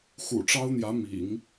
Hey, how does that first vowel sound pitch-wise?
low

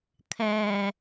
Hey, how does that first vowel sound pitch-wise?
low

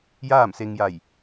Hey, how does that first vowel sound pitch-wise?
falling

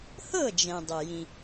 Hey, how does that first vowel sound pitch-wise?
falling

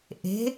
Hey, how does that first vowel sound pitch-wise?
rising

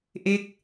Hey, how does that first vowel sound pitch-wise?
falling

